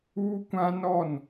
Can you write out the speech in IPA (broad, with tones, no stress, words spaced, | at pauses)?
uː˦kʷã˦nɔ˦˨n